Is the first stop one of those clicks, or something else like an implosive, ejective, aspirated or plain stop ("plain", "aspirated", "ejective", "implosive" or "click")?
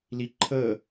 click